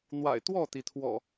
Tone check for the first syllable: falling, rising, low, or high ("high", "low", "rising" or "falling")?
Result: low